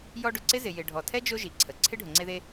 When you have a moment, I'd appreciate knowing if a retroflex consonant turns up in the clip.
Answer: yes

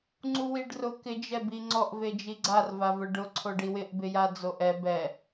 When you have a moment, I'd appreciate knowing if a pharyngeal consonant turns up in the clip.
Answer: no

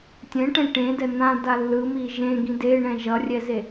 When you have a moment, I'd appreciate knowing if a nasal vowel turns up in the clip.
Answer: yes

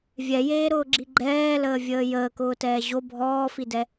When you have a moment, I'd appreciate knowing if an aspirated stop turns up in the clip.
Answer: no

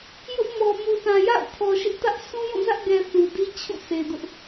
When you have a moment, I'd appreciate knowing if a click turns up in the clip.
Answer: no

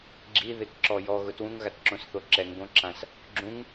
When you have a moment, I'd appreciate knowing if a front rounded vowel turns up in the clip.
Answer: no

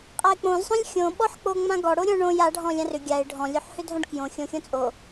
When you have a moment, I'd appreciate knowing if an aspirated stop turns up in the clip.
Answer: no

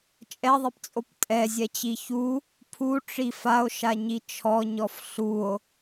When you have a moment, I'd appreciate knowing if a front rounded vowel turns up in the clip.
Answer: no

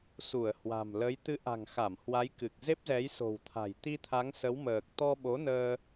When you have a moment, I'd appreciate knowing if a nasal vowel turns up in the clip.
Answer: no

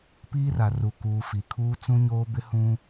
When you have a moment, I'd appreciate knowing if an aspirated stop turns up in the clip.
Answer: yes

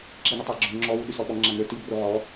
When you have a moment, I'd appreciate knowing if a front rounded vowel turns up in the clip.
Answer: yes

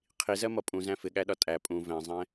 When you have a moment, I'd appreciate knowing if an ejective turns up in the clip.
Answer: yes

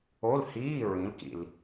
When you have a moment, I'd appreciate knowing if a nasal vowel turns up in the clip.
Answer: yes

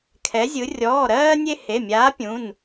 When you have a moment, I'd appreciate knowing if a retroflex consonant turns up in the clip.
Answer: no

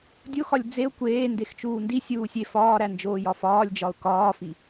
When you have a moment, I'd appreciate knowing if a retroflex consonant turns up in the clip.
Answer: no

